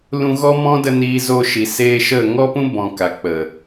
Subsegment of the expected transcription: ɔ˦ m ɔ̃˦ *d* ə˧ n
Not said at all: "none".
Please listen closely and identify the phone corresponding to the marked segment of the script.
d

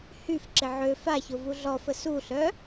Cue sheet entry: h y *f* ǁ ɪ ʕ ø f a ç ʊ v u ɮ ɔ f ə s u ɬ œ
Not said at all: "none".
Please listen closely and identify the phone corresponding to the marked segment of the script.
f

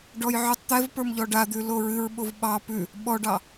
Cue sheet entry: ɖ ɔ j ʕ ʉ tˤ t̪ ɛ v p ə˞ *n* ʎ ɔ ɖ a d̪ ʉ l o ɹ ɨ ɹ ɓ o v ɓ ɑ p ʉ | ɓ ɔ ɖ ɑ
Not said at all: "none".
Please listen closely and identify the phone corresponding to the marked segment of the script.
m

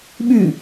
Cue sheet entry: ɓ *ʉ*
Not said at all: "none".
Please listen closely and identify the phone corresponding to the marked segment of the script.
ʉ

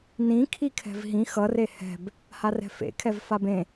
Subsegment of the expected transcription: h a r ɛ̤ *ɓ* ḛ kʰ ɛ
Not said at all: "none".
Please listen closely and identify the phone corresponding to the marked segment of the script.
f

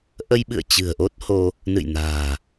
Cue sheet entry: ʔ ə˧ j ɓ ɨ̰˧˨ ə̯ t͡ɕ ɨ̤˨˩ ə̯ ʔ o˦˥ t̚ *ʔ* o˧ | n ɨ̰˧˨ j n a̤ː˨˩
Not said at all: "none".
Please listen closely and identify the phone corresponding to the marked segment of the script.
h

